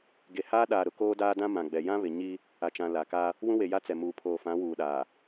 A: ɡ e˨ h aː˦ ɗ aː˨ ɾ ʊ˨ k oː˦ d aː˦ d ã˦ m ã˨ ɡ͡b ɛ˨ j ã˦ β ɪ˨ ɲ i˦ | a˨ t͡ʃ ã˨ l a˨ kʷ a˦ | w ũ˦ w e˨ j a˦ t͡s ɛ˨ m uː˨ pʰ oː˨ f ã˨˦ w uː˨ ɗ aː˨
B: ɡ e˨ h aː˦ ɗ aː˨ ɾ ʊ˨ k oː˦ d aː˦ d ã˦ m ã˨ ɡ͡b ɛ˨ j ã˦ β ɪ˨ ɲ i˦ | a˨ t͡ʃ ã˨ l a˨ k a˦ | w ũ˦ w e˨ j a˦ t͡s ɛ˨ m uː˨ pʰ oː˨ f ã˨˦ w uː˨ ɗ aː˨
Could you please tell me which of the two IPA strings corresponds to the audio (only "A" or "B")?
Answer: B